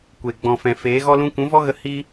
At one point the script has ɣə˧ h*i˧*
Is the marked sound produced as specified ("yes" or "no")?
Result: no